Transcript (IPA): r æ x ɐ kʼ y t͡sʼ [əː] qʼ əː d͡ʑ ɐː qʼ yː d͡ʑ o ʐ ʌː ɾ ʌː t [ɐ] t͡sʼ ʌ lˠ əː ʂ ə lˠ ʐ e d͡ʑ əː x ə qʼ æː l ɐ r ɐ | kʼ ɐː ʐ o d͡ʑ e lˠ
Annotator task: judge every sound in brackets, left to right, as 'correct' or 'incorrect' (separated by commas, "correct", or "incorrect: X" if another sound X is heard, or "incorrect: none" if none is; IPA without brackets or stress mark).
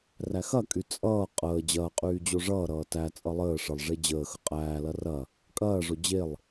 incorrect: ʌː, incorrect: æ